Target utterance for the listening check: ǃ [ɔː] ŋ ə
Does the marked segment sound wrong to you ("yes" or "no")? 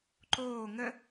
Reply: yes